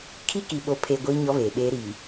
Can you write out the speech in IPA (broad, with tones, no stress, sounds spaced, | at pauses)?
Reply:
kʰ i˦ k i˨ ɓ o˨ pʰ e˨ ɡʷ iː˦ ɲ ɔ˦ β eː˨ ɓ eː˦ ɾ i˨